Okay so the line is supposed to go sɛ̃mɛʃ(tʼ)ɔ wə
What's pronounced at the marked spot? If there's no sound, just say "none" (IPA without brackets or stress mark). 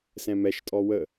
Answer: tʼ